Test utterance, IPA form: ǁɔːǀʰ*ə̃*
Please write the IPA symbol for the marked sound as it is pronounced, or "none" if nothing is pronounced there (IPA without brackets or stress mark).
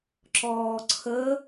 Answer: ə